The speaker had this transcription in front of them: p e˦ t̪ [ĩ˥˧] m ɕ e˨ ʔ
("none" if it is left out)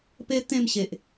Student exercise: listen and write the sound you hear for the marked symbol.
ẽ˥˧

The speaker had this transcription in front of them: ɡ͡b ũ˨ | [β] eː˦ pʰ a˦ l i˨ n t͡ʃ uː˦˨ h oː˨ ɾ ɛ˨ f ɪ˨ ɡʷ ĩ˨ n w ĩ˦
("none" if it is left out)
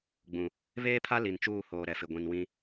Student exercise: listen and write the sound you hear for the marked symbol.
β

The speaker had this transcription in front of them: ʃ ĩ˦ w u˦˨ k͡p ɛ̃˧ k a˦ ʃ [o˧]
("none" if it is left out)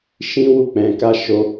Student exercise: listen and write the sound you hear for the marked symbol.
o˦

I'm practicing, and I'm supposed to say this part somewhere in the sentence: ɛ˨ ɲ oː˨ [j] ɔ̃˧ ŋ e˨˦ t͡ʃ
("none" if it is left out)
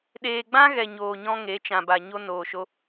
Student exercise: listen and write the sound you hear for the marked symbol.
ɲ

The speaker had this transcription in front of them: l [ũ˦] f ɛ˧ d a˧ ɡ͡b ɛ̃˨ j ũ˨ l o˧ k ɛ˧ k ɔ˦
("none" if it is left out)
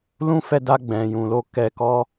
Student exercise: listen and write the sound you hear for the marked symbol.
ũ˧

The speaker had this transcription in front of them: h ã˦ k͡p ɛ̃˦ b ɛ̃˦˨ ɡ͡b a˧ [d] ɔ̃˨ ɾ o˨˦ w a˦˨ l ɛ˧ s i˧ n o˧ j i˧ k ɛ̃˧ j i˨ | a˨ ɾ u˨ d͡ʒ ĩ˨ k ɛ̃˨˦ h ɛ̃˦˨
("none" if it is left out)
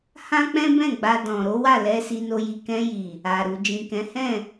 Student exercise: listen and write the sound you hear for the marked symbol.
d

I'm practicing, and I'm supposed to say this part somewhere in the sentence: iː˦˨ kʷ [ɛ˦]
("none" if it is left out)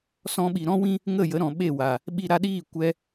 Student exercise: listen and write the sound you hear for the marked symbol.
ɛ˦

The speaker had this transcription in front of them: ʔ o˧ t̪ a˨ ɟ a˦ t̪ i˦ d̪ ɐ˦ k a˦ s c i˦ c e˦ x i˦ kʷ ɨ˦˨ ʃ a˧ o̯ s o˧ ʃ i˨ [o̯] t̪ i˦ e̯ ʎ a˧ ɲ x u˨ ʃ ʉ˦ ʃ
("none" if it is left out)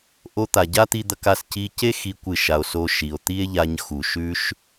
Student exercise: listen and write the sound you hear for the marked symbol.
o̯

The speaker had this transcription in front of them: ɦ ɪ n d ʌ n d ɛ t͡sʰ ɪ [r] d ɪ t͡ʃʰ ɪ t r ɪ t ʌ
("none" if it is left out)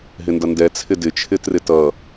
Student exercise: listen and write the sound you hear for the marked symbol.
none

